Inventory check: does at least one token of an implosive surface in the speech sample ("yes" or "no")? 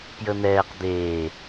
no